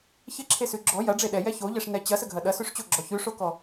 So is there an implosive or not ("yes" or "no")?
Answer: yes